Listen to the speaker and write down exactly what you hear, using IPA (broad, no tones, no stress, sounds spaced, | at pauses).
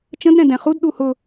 t͡ʃ ə̃ d ɾ ɛ̃ d ɛ̃ χ u d ɗ u h ʊ